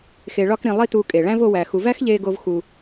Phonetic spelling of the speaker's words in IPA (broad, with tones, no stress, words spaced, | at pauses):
xe˨ɭɒ˧kɾĩ˨ lˠi˧ tu˧kʼe˨ ɭæ̃˦vo˧wæ˨ xu˨væ˦xʎe˧ɡo˧v xu˧